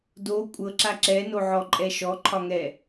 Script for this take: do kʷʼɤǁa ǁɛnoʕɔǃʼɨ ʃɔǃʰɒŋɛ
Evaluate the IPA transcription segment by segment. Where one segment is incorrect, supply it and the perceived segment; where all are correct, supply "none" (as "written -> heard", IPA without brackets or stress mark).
ɨ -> ɛ